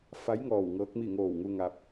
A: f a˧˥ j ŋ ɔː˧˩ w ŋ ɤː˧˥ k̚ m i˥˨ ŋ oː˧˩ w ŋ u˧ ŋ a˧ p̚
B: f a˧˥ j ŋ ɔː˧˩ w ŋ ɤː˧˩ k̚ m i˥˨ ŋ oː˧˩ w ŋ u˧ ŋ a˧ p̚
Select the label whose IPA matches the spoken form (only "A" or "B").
A